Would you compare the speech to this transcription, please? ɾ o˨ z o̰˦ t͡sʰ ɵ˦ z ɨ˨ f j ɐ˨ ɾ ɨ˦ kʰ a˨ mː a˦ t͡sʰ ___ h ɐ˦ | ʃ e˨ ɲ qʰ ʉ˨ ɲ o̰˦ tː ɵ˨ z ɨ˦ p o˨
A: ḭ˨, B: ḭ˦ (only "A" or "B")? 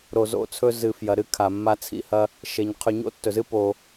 B